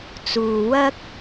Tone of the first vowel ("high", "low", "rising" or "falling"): low